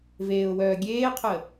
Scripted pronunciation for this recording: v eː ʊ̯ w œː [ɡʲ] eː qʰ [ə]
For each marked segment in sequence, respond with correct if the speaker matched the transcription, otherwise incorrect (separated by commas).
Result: correct, correct